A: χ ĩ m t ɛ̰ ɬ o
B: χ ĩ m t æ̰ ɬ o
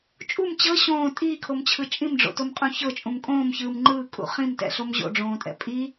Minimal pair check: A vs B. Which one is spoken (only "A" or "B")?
A